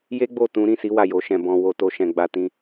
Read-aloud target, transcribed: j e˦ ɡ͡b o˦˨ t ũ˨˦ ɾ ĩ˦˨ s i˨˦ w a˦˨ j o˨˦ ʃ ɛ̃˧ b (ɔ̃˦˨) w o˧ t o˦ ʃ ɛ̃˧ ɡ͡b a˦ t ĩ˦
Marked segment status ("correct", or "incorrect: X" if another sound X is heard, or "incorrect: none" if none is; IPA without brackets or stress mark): incorrect: ɔ̃˧